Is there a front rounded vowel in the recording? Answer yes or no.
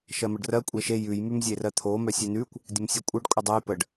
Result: yes